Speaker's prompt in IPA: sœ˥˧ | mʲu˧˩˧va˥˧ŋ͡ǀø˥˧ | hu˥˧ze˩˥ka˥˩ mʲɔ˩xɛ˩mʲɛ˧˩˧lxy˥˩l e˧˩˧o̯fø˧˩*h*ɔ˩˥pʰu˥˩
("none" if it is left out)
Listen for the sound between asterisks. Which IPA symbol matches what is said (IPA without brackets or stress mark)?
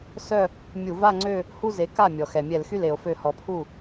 h